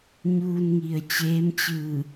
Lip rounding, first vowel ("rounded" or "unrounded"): rounded